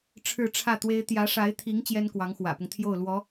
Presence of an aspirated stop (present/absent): present